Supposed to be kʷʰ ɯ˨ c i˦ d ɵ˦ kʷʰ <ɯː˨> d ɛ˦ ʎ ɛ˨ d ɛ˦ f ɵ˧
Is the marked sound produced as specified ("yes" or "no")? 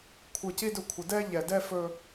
no